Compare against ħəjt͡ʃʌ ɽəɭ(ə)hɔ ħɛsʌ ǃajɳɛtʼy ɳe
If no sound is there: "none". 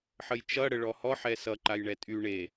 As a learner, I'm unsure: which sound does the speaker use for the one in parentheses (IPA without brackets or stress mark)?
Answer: ɔ